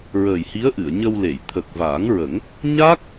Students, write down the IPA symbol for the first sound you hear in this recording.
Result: ɹ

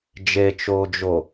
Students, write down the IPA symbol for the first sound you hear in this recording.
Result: d͡ʒ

